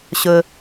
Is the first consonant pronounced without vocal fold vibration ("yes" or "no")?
yes